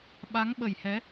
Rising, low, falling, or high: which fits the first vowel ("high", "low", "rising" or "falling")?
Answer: rising